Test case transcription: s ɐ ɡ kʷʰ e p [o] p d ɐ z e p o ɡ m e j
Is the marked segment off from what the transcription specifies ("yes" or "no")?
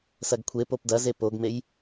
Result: no